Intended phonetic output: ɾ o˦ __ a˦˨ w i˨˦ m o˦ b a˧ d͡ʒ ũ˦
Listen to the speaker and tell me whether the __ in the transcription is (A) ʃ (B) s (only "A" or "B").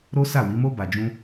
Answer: B